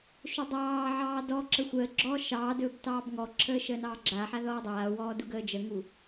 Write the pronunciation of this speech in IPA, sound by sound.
ʃ ɵ dˤ ɑː ʕ ɑː d ɔ ǁ ə xʷ əː ɡ͡ǁ ɔː ʃ ɑː d ɵː b t ɑː b ŋ ɔ ǁʰ əː ʃ əː n ɑː ɡ͡ǁ a ħ a ð ɔː dˤ aː w ɔː d u ɡ əː d͡ʒ ə ŋ u

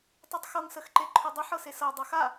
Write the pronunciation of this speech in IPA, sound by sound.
tˤ ʉ tˤ x ɤ ŋ s ə x ǃ e ǃʰ ʉ dˤ ə ħ ɤ s e s ɤ dˤ ɐ x a

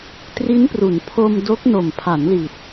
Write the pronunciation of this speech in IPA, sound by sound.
t r i˦˥ n p r u˩˦ n pʰ o˧ m d o˦˥ k̚ n o˨˩ m pʰ a˩˦ n l i˨˩ t̚

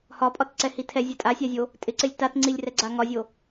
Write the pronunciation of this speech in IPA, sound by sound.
h ɒ pʼ ɒ t ǀ ɛ h i tʰ ɛ zʲ ɛ tʼ a sʲ a zʲ o | tʼ ɪ ǀ ɪ lʲ t a t ŋ͡ǀ i lʲ r ɛ ɡ͡ǀ a ŋ ɒ zʲ o

